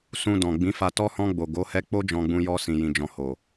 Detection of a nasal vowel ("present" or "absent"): present